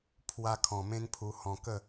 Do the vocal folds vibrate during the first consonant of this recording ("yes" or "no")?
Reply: no